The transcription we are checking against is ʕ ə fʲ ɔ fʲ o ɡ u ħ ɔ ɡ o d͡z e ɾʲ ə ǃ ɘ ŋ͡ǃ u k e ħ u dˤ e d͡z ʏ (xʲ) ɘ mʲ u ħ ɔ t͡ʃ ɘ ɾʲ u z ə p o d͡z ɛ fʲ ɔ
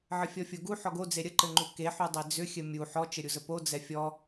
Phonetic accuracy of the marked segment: correct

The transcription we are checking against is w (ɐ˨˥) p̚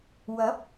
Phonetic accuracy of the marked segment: correct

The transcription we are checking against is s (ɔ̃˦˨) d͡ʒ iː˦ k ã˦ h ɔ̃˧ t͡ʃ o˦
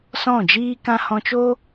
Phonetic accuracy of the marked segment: correct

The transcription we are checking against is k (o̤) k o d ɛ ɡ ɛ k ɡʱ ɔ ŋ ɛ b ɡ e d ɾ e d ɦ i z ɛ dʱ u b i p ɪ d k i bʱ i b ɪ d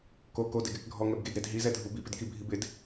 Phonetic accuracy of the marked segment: incorrect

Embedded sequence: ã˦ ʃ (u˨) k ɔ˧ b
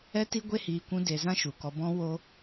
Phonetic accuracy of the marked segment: correct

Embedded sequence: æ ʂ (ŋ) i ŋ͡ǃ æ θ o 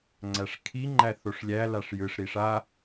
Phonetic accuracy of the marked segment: incorrect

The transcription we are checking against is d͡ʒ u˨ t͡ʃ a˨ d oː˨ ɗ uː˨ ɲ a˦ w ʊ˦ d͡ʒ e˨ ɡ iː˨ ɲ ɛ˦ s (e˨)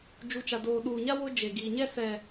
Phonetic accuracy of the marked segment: incorrect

